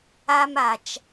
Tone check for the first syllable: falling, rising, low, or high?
high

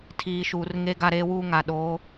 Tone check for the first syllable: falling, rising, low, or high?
low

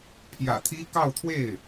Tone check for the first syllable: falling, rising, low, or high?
low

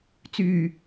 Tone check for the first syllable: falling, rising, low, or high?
low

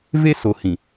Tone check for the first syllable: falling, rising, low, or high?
high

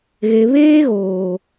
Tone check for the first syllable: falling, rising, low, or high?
low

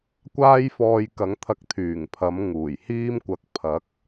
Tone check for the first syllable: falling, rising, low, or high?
high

